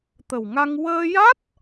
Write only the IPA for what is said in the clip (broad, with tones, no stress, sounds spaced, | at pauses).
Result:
t̪ ə˨˩ w ŋ a˧ ŋ w əː˧ j a˦˥ t̚